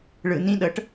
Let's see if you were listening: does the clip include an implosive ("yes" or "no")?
yes